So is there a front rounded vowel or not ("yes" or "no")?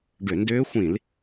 yes